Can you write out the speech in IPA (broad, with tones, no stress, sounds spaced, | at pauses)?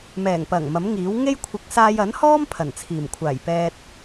m ɛː˨˩ ŋ p ɐ˨˩ ŋ m ɐ˨˥ m ŋ iː˨˥ w ŋ e˥ j kʷʰ ɪ˨˥ k̚ s aː˧ j ɐ˨˥ n h ɔː˥ m pʰ ɐ˨˩ n t͡sʰ iː˨˩ m kʷʰ aː˨˩ j p ɛː˧ t̚